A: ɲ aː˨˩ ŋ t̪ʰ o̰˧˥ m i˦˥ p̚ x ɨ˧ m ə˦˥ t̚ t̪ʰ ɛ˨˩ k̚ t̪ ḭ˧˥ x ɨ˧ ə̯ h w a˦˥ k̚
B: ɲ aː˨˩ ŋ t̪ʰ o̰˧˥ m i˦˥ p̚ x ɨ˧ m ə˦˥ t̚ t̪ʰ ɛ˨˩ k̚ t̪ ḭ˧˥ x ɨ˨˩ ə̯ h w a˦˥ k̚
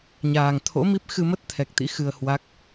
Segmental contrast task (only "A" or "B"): A